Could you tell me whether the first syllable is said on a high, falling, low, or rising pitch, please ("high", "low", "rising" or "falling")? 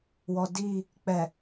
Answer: low